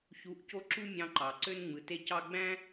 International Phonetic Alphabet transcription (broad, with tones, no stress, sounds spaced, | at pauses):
ç u˨˦ ʔ c o˧ ǁ u˦ mʲ ɑ̃˧ ǃ ɑ˨ ǀ ø˦ n ŋ͡m ɯ˨ t e˦ c ɑ˦ ɡ͡b æ̃˦